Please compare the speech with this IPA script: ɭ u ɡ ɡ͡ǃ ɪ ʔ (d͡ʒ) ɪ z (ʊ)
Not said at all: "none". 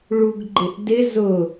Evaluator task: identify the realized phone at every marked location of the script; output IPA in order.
d, ʊ

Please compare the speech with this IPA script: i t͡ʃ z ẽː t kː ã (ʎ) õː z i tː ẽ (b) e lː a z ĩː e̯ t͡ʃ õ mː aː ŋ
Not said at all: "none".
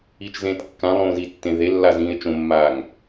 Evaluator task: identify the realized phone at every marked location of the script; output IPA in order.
lˠ, ð

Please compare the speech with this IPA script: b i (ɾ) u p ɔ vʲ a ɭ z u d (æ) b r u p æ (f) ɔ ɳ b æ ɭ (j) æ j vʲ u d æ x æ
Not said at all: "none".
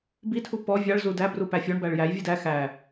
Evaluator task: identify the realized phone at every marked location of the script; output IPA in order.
tʰ, æ, fʲ, j

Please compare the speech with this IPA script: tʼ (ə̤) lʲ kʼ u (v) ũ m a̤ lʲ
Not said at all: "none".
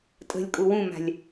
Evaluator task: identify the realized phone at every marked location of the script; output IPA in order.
ə̤, w

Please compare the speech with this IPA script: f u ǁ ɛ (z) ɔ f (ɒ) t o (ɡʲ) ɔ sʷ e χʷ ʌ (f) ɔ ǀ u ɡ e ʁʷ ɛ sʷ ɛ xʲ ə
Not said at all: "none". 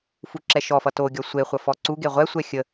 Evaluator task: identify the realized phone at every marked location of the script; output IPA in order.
ʃ, ʌ, ɡʲ, f

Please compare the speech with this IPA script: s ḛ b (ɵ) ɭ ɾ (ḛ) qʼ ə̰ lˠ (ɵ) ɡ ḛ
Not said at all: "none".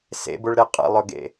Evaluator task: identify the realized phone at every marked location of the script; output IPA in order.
ʊ, e, ɵ

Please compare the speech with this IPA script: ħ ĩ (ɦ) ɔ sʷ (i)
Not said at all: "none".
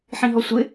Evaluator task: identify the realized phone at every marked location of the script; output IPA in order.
ɦ, ɪ

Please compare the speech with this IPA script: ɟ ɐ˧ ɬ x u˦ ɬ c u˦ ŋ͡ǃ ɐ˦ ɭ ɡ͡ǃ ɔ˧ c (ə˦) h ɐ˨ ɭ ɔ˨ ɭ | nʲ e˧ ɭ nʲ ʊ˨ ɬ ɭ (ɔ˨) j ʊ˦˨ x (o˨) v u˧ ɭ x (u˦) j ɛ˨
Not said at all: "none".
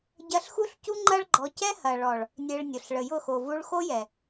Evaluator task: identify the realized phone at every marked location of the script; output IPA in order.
ɛ˦, ə˨, o˨, o˦

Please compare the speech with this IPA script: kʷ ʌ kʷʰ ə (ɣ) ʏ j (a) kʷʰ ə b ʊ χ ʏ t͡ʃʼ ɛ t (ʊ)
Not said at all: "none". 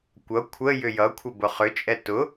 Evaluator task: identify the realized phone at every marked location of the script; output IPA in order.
j, ʌ, ʊ

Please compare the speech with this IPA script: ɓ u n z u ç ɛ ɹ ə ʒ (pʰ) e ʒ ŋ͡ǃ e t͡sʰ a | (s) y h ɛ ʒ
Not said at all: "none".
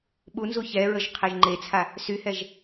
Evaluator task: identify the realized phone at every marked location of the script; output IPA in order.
qʰ, s

